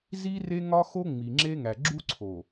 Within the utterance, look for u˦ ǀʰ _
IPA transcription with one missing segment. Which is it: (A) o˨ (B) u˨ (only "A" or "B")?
A